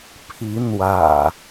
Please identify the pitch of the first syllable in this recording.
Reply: rising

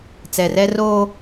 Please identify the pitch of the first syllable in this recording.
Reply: low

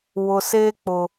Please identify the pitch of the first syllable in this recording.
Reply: low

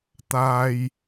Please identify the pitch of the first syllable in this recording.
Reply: high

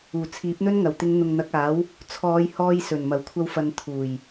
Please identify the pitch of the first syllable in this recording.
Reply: low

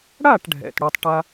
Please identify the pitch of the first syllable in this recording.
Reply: falling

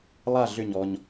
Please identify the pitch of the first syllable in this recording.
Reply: falling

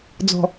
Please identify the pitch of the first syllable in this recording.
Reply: low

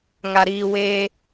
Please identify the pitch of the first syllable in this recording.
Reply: low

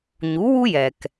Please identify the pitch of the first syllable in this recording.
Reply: rising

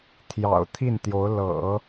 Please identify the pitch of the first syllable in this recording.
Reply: low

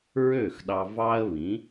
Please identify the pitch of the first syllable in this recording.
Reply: falling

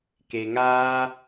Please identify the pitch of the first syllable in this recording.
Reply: low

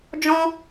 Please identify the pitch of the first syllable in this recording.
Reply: high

